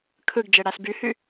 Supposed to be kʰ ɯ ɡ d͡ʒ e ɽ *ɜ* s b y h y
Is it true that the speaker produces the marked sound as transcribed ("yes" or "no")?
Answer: no